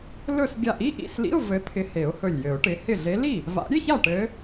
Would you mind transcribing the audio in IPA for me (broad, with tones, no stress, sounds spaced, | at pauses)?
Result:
l ɵ˥˩ s ɡʲ a˧˩ ʔ i˧˥˧ ʔ ḭ˧˥˧ s l ḭ˧˥˧ ʊ̯ v ɘ˨˦ t̪ʰ ɪ˨˦ h e˨˩˦ ʊ̯ h ɵ˧˩ lʲ j ɘ˨˩˦ ʊ̯ ʈ ɪ˨˦ h ɪ˥˩ ɮ e˨˦ l i˥˩ | v a̰˨˩˦ ɾʲ e˧˥˧ ç a˥˩ ʈ ɘ˨˦